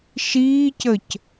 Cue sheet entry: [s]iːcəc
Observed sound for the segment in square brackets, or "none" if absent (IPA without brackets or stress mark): ʃ